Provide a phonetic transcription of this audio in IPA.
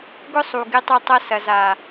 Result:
ɡ ʊ˦ sˤ u˨ ɡ ɪ˧ tˤ ɪ˧ tˤ ɐ˧ s ɐ˨ z a˨

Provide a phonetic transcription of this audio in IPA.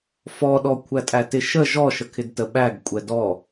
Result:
f ɔ ɗ ɔ kʷʰ æ tʼ æ t ɪ ʃ ə ʒ ɔ ʃ ə kʰ ɪ d t ə ɓ æ ɡ kʷʼ ɛ d ɔ

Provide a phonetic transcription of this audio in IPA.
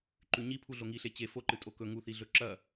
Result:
ǃ ʉ ɲ i pʰ u ɮ o ŋ i ɬ e t͡ɕ e f o ǃ ɨ tʼ o k ɵ ŋ u θ i ɮ ɵ ǁ ɐ

